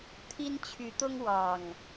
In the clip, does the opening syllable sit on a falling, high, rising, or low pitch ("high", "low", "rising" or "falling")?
high